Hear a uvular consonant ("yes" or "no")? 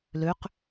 yes